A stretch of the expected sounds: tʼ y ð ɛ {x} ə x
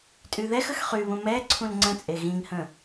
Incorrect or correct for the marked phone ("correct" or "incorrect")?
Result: correct